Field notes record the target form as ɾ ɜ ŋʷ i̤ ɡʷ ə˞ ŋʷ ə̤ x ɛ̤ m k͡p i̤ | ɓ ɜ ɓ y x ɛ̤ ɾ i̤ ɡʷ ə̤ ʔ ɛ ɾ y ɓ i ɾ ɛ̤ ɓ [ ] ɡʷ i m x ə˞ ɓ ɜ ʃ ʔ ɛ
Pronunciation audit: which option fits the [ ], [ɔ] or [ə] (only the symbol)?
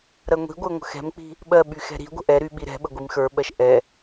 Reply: ə